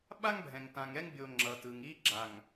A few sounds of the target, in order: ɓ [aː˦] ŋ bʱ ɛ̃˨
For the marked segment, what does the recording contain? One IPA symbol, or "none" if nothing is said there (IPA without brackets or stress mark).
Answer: a˦